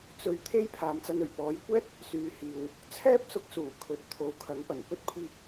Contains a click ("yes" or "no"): no